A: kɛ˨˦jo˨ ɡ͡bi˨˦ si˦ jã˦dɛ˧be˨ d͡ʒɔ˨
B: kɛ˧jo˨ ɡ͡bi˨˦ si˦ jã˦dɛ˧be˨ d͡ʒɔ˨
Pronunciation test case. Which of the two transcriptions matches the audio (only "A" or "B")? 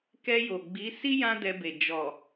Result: B